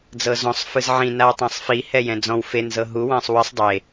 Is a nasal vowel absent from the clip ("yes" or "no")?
no